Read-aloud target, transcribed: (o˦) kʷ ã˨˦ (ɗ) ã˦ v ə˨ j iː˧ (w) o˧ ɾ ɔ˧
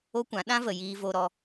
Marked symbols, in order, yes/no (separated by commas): yes, yes, no